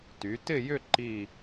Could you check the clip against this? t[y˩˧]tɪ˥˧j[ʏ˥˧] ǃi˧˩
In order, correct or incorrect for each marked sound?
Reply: correct, correct

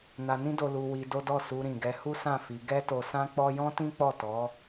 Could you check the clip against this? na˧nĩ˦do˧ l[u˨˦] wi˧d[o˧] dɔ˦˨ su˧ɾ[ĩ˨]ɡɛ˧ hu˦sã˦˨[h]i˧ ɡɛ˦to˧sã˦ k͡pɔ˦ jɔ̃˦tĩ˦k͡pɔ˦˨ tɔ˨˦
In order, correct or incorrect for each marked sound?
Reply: incorrect: u˧, incorrect: o˦, correct, incorrect: f

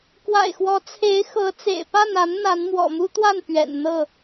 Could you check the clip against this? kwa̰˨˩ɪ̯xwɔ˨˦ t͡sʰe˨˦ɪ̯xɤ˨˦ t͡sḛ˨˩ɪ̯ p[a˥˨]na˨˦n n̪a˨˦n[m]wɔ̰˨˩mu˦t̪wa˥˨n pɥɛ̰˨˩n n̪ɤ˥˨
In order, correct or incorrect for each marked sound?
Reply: correct, correct

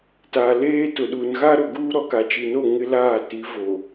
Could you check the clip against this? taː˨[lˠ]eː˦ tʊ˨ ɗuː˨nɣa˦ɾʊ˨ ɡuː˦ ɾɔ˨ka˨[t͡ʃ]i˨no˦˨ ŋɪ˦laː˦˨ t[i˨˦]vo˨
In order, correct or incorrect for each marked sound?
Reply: incorrect: l, correct, correct

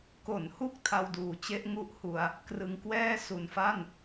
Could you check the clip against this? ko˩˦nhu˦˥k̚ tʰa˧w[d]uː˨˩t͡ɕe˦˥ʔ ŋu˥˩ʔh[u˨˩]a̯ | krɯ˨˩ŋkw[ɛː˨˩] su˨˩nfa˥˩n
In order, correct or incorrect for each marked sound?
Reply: correct, incorrect: u˧, incorrect: ɛː˥˩

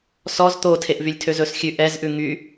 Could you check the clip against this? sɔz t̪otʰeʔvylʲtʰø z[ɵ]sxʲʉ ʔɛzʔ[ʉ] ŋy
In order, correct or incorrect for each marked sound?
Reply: correct, correct

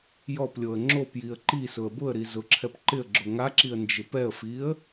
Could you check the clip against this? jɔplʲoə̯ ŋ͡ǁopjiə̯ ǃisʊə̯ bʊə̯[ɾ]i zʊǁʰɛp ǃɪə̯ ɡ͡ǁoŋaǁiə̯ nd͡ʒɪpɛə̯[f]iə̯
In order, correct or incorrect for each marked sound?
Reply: correct, correct

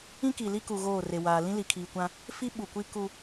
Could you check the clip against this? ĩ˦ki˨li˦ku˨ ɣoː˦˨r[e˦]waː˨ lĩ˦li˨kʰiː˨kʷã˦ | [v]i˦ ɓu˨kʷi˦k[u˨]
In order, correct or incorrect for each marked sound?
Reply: incorrect: e˨, incorrect: f, incorrect: u˦

